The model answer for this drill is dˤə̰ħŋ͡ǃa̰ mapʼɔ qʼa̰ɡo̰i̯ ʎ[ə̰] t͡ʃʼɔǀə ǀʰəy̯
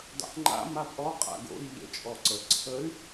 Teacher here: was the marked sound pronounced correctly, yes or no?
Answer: yes